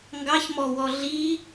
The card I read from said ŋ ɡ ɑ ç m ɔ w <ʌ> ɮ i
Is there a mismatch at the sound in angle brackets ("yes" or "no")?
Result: yes